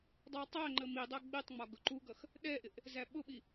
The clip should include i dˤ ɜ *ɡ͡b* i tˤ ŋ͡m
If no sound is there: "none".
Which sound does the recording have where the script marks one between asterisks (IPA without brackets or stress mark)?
ɡ͡b